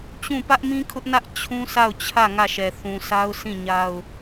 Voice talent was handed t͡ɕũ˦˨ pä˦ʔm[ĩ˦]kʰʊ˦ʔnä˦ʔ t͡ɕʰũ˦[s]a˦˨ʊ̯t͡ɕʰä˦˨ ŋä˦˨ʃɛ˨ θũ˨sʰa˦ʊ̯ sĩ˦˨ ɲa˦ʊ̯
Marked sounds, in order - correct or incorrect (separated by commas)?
correct, correct